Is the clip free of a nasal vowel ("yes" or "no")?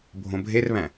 no